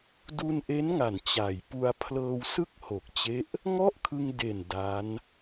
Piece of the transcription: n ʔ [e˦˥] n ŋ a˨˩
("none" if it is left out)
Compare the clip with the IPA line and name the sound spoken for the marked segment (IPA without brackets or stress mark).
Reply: e˦˥